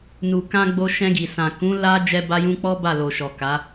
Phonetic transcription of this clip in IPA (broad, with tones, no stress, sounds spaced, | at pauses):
n u˨ k ã˧ ɡ͡b o˧ ʃ ɛ̃˧ ɡ i˨ s ã˨ k ũ˨˦ l a˦ d͡ʒ ɛ˦ b a˦ j ũ˦ k͡p ɔ˦ b a˦˨ l o˨ ʃ ɔ˨ k a˨˦